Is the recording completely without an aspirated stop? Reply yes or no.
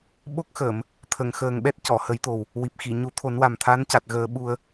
no